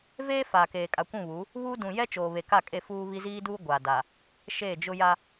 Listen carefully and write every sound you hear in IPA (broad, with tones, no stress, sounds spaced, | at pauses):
v eː˦ f a˨ k eː˨ kʼ a˨ kʷ ũ˦˨ β u˨˦ | β uː˦ d ũ˨ j ɛ˦ t͡ʃ oː˨ β e˨ k a˦˨ kʼ e˦˨ f uː˦ β i˦ z iː˦ d uː˦ ɡʷ a˨ d a˨ | ʃ eː˦˨ d͡ʒ ʊ˦ j a˦